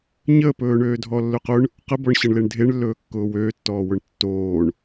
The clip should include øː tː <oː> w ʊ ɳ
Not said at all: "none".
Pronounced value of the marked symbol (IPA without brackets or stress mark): ɔː